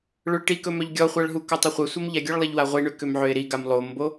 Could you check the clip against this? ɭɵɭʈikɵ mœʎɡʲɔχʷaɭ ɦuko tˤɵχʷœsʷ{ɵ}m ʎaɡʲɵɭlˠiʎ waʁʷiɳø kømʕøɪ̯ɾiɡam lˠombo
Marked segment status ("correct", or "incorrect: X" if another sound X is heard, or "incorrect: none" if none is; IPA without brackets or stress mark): incorrect: œ